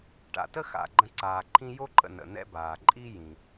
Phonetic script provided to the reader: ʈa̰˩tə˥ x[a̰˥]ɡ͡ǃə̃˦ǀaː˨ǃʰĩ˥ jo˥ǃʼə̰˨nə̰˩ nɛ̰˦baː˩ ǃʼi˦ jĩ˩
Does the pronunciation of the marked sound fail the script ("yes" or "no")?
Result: yes